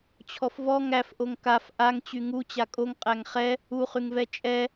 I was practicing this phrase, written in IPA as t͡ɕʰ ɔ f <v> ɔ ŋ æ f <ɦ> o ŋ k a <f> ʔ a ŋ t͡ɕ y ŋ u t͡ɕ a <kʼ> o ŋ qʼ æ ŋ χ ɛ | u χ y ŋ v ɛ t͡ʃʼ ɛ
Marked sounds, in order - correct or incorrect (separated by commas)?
correct, incorrect, correct, correct